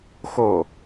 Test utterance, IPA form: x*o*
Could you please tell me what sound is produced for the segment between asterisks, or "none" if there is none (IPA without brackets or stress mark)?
o